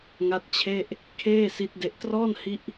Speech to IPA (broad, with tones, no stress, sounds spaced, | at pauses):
ŋ a˦˥ t̚ t͡ɕʰ e˥˩ ʔ | kʰ eː˥˩ s i˦˥ t̚ d e˦˥ ʔ t r ɔː˥˩ n h i˦˥ ʔ